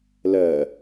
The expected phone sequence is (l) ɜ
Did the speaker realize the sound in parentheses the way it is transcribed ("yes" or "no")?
yes